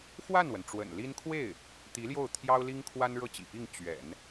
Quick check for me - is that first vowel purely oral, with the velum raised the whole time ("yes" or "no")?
yes